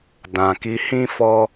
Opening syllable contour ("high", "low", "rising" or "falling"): low